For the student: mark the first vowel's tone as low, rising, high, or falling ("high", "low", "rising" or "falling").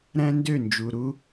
high